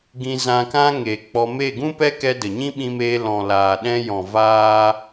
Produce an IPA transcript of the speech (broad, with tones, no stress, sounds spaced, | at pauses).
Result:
ɡ ĩ˧ z ã˧ k ã˦ ŋ e˨ k͡p ɔ˧ m e˦˨ ɡ ũ˦ p ɛ˦ k ɛ˧ d ə˨ ɲ ĩ˦ ɓ ĩ˧ m eː˧ l ɔ̃˨ l aː˨ ɗ ɛ̃˧ j ɔ̃˨ v aː˦